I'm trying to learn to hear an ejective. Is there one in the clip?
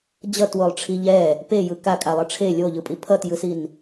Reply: yes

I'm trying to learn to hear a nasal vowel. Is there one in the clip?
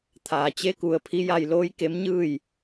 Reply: no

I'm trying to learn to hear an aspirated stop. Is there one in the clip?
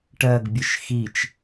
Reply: no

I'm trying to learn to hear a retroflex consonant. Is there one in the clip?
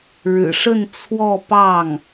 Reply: yes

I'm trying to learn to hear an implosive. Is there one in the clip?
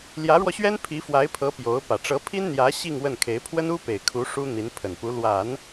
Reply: no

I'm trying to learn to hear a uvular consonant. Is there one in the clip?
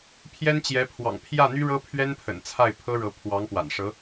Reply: no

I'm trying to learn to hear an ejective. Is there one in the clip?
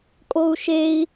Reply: yes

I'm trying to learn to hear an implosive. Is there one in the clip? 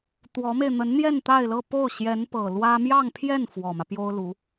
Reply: no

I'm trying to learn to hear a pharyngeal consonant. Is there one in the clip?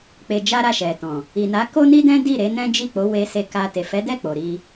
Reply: no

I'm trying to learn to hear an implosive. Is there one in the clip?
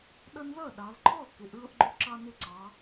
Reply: yes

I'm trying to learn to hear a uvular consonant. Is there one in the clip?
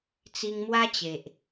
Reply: no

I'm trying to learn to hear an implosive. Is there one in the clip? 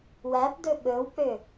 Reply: yes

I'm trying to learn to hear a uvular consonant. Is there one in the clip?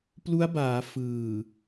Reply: no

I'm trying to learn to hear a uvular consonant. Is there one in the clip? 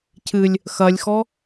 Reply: no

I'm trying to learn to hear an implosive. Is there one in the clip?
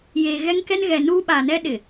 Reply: yes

